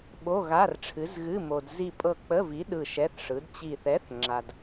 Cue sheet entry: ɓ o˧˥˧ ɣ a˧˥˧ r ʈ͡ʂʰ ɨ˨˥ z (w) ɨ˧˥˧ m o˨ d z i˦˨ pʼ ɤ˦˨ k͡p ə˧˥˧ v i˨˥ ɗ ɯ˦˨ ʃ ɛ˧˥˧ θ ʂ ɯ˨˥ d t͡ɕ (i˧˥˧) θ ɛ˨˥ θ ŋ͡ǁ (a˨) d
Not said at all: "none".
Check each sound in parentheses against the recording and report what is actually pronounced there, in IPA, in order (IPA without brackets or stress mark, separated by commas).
ɣ, i˦˨, a˨